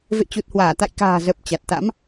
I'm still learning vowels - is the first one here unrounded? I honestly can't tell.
yes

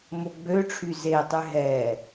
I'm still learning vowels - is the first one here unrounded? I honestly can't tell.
no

